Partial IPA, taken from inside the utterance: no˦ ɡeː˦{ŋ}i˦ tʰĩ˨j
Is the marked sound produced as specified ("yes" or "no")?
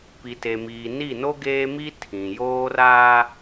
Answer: no